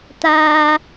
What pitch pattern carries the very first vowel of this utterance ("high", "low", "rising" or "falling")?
high